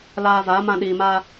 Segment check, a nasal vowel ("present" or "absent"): present